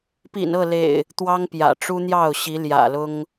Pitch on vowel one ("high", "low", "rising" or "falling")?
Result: low